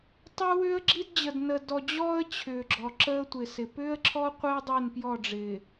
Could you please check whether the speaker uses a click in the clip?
yes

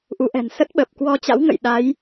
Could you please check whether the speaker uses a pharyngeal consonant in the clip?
no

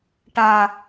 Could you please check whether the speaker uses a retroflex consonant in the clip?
yes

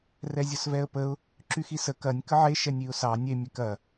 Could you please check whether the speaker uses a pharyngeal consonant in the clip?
yes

